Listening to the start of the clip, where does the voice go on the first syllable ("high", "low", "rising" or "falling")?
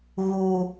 low